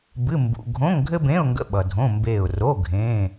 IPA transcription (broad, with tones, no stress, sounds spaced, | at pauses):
b ɨ˧˥˧ m b ṵ˧˥˧ ɡʱ õ˧˥˧ ŋ ɡʱ ɘ˥ b ẽ˧˥˧ ʊ̯ ŋ ɡ ə̰˧˥˧ ɓ ʌ˨ dʱ õ˧˥˧ m b eː˦˨ ʊ̯ r o˧˥˧ ɡʱ ẽː˧˥˧